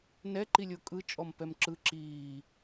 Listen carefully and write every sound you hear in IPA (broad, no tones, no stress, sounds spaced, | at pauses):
n ɛ ǃ i lʲ o kʼ ɯ t͡ʃʼ ɔ m p ɛ m ǁ ɯ ǁ iː